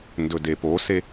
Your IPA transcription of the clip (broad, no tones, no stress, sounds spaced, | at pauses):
n d ɵ d e p o s e